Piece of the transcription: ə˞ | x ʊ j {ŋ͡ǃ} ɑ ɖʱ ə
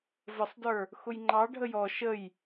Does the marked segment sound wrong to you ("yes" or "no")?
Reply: no